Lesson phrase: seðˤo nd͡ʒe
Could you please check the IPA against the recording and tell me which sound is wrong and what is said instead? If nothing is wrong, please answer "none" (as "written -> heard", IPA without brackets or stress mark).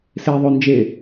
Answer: none